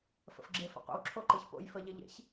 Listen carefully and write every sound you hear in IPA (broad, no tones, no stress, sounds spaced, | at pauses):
f ə̰ f ɡ͡ǁ e f ə̰ qʷ ə̰ w ǁʰ o ǃ ɯ ç p o̰ j f ə ʎ ɪ ʎ ḛ ç